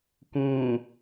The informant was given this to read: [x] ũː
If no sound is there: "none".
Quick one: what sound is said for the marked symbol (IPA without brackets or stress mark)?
k